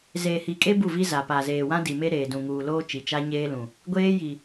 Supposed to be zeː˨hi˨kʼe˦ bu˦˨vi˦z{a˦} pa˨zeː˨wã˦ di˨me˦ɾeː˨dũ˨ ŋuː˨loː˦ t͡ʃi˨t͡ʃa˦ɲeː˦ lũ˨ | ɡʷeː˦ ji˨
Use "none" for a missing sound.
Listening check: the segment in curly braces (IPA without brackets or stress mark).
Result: a˨